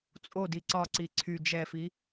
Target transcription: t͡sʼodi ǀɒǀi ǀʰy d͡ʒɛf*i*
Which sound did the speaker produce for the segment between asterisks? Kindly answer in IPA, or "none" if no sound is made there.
i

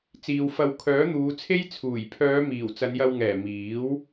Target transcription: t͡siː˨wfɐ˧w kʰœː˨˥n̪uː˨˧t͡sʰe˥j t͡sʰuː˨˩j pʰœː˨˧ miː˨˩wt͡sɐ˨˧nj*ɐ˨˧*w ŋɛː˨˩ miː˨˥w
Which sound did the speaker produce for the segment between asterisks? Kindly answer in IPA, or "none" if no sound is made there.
ɐ˧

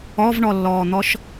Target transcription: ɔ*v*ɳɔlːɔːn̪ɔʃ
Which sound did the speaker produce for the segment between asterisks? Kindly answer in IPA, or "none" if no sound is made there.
v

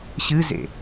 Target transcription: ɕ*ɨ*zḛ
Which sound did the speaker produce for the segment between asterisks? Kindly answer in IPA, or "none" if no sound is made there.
ɨ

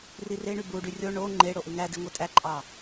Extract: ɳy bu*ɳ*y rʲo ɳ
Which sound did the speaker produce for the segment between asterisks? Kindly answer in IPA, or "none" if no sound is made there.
ɖ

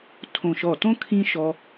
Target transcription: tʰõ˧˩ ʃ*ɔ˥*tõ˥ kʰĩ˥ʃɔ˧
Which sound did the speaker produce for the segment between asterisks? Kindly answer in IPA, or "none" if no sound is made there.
ɔ˧˩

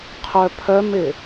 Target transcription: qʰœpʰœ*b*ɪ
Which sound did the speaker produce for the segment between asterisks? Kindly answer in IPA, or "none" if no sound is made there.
m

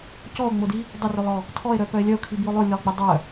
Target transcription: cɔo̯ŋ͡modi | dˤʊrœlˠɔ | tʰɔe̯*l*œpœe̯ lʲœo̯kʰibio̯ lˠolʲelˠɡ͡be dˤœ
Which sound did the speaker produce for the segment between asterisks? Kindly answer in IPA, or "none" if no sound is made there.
ɾ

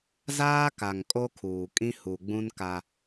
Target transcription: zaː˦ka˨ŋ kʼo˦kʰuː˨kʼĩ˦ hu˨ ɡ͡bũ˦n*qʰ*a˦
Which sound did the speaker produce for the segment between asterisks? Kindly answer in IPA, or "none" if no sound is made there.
k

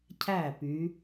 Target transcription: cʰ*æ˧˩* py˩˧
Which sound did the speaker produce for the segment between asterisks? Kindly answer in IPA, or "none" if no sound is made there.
æ˧˩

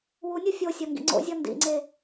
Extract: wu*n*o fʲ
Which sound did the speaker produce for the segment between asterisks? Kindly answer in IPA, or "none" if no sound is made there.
nʲ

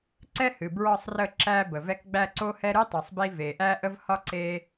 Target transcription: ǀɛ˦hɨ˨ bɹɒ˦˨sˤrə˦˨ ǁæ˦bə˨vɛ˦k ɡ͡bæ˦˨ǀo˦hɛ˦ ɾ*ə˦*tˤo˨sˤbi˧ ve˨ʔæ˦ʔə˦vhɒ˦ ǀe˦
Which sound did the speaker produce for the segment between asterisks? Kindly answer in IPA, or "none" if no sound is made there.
ɨ˦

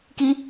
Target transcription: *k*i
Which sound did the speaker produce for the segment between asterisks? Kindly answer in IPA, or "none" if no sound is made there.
k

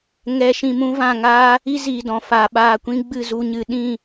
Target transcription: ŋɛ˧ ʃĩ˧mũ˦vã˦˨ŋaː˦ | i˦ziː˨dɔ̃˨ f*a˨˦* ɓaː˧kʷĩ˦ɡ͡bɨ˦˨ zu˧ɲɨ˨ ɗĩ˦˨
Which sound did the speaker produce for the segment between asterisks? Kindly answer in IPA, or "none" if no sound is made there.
a˨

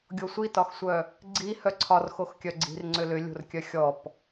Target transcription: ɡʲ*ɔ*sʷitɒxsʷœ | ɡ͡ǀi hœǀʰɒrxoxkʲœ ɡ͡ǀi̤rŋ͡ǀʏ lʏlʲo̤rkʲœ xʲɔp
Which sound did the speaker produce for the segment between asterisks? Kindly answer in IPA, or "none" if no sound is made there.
o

